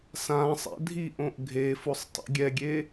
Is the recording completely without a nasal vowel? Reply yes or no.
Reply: no